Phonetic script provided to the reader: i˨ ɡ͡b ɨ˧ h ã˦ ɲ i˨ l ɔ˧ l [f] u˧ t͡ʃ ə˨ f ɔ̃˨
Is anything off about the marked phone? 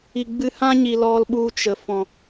yes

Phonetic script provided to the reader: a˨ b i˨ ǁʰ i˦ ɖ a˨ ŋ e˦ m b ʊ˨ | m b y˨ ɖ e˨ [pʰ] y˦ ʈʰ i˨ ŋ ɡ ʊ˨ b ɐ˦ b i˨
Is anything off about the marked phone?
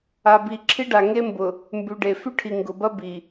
yes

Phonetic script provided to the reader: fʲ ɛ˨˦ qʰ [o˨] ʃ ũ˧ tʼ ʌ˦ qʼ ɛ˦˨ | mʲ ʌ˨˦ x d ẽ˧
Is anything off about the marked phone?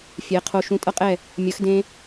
yes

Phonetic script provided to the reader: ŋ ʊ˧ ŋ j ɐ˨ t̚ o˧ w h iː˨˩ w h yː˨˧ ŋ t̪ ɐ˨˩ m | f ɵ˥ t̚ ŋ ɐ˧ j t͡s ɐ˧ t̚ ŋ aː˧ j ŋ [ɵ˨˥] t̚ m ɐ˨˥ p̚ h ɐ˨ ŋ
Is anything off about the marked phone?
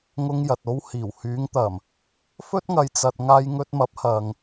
yes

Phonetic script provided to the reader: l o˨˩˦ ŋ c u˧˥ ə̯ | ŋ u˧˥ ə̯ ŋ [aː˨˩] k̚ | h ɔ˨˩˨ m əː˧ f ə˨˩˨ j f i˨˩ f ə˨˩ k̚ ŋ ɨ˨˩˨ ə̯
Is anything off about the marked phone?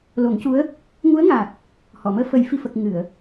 no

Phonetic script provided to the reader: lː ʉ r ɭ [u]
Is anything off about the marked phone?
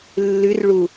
no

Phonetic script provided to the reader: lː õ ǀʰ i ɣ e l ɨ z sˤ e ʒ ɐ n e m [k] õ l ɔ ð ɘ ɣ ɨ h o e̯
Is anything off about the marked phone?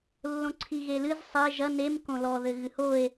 no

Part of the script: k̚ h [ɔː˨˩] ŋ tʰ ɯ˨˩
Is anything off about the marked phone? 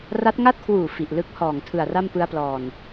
no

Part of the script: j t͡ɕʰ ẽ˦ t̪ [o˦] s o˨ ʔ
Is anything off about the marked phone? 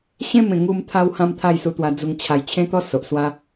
yes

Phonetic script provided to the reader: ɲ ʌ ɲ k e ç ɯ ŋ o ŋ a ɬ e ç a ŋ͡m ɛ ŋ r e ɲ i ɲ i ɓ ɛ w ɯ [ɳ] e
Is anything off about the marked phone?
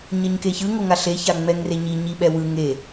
yes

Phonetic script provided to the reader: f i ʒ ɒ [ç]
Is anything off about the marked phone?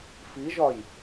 yes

